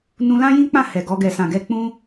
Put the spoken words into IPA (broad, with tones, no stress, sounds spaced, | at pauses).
n ũ˧ l ã˦ j ĩ˦ k͡p ã˦˨ h ɛ˨ ɡ ɔ˧ ɡ ɛ˨ s ã˨ ɡ ɛ˧ k͡p ũ˦